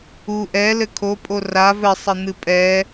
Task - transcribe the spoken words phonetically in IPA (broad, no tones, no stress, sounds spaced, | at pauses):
u ʔ ɛ l ɘ kʰ o pʼ o r a v ɘ sˤ ɘ n̪ ɨ pʼ ɛ